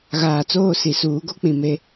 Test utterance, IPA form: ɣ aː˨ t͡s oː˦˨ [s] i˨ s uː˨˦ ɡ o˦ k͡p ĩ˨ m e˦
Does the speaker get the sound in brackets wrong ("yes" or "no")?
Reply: no